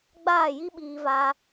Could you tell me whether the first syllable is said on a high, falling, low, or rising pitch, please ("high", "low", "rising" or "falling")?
falling